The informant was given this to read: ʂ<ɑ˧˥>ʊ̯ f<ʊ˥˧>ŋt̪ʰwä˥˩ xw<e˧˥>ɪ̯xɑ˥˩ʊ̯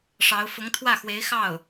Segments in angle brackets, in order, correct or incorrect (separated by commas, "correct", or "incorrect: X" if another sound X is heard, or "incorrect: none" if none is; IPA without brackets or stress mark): correct, incorrect: ʊ˧˥, correct